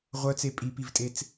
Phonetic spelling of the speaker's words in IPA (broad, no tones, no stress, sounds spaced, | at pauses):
ʁʷ œ t͡s e pʼ i p i v tʼ e t͡s